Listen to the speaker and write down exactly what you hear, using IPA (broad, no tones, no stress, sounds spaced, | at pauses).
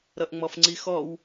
ɾ ʌ ʔ ŋ͡m ɔ f ŋ͡ǀ i x ɔ w